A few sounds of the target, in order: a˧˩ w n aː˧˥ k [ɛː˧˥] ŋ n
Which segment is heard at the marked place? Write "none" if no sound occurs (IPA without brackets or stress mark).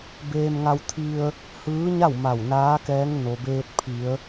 ɛː˧˥